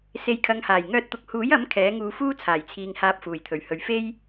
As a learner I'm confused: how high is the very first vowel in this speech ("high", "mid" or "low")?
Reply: mid